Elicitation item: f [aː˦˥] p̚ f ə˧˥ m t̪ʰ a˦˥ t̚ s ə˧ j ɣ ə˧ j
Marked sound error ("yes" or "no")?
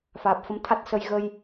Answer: yes